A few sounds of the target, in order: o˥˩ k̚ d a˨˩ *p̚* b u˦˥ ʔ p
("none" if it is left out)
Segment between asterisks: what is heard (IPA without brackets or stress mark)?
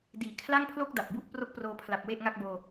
p̚